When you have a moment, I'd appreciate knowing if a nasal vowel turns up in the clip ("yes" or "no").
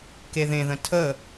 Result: yes